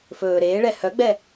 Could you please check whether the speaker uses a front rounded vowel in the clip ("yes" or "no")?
yes